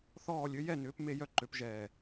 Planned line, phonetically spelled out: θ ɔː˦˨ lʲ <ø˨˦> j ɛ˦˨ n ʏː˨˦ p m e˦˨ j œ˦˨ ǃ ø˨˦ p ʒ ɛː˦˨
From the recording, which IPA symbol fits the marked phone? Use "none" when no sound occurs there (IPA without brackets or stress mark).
ø˨˦